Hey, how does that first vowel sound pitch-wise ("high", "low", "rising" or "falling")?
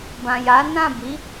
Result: low